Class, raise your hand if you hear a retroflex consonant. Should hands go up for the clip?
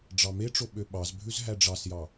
yes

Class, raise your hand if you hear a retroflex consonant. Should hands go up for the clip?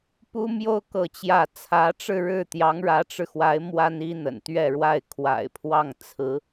yes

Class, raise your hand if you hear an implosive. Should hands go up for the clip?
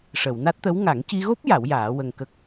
no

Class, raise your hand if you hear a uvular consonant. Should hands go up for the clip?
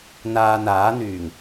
no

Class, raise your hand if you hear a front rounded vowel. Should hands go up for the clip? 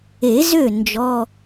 yes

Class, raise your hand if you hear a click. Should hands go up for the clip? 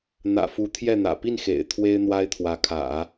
no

